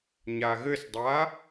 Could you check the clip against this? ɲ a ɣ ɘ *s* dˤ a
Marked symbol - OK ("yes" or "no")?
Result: yes